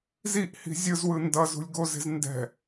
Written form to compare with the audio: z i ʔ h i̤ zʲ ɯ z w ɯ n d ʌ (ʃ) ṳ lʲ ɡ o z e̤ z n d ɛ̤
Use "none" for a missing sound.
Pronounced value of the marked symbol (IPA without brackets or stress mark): z